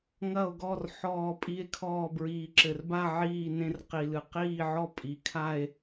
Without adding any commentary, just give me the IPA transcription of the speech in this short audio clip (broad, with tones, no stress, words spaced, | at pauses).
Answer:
ŋɐ˥˧o̯ɡɔ˥˧r ħɔː˥˧pʼi˥˧e̯kʰɔː˥˧ bɹiː˨ǁɘ˨rba˥˧ ʕiː˥˧nẽ˥˧r qi˨ lɨ˨ qiː˥˧ʕɔ˥˧ pʼi˨kʰa˥˧e̯